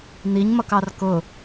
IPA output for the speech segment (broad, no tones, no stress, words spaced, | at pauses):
n̪iɲmʌkɑr kʊ